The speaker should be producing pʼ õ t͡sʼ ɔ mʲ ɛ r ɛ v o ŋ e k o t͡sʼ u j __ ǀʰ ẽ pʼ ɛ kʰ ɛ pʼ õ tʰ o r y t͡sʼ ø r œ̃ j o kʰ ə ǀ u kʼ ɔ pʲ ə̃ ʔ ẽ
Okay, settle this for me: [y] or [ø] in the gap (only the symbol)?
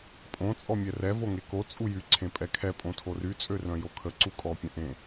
y